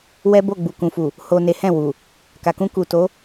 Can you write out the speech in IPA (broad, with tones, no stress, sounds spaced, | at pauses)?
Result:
w ɛ˦ b o˦˨ ɡ͡b u˨ k ũ˨ f u˨ | h o˨ n e˨˦ h ɛ̃˦˨ w u˨ | k a˨ k ũ˧ k u˨ t o˨˦